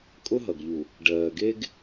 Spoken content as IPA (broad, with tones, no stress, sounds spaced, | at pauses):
kʼ ʊ˦ ɦ ʌ˨ ɡ ʎ u˨ | ɖ ɜː˨ ɡ e˦ ɡ